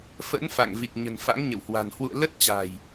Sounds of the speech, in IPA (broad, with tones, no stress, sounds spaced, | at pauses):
f ə̰˧˥ n f a̰˧˨ ŋ v i˨˩ k̚ ɲ ə̤˨˩ n f a̰˧˥ ŋ ɲ ə̰˧˨ w h w a̤˨˩ n h w ṵ˧˨ ə̯ l ə˦˥ t̚ t͡ɕ a̤˨˩ j